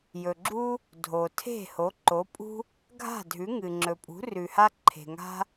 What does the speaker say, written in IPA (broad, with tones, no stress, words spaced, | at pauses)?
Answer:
jɵ˩ɡ͡ǁu˥ | dʱo˩ tʰe̤˥˩ ho˩˥ǃo˩˥pʼṳ˥ | ɡʱa̤˥˩dʱʉ˩˥ ŋɨ˩ŋ͡ǁɵ˩pʼṳ˩˥rʉ˩ ha˥ǃʰe̤˩ŋa̤˥